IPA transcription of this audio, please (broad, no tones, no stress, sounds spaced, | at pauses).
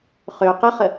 χ ø q ə χ ə